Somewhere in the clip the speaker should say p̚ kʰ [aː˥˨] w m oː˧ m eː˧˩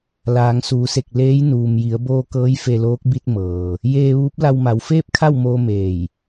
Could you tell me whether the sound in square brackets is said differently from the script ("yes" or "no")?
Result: yes